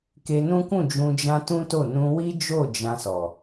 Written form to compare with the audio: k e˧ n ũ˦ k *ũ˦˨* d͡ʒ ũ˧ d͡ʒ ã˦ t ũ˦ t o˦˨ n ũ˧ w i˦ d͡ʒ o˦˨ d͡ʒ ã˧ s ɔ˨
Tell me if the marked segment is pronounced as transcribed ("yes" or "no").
yes